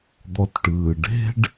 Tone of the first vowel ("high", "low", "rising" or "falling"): low